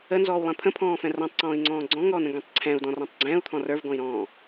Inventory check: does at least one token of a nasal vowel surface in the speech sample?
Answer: yes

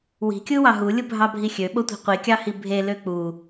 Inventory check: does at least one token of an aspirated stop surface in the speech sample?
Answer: no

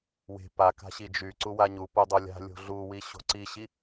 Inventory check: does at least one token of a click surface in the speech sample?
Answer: yes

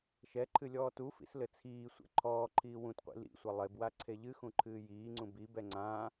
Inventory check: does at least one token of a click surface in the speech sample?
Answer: yes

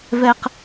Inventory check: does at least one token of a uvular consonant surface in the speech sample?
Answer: yes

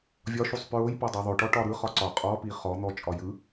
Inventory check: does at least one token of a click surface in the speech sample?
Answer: yes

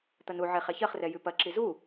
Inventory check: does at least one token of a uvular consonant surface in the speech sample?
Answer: yes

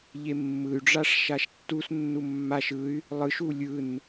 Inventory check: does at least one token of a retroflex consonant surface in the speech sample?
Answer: yes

